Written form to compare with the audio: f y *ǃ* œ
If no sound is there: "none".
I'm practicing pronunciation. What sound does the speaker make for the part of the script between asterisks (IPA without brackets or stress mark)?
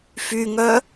ŋ